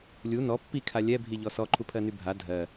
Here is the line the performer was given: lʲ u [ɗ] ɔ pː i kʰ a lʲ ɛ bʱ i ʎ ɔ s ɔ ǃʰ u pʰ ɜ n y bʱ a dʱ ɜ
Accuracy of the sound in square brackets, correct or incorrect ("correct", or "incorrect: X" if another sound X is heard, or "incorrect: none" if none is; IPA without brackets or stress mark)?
incorrect: n